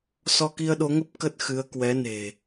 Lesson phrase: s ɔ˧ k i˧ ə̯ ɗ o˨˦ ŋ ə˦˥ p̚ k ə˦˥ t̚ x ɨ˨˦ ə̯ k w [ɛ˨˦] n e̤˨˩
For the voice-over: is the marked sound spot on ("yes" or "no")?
yes